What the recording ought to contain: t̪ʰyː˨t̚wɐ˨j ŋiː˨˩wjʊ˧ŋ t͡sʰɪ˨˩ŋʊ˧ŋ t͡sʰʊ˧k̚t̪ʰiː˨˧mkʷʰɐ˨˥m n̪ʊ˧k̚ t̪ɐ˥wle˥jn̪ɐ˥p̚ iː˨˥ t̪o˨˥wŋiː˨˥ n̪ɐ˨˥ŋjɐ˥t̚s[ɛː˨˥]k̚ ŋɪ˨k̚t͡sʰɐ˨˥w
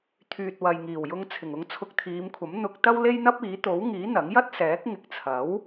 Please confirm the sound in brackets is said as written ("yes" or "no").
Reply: yes